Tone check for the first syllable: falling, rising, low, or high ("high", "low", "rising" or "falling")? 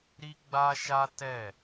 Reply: high